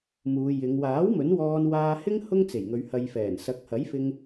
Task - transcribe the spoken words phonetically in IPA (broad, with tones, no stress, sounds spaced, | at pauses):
m uː˨˧ j ɪ˨˧ ŋ w aː˨˥ w m ɵ˨˥ n w ɔː˧ n w aː˧ h ɪ˥ ŋ h ʊ˥ ŋ t͡s e˨˩ j ŋ ɵ˨˧ ɥ h ɐ˨ j f ɛː˨˩ n s ɐ˨˥ k̚ h ɐ˨˥ j f ɪ˧ ŋ